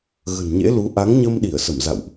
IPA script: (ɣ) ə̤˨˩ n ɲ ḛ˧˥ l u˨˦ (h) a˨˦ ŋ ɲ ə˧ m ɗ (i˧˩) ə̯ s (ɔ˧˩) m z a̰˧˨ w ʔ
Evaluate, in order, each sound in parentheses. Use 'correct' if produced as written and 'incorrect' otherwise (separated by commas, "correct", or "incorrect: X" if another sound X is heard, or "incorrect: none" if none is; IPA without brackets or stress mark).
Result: correct, incorrect: ʔ, correct, incorrect: ə˧˩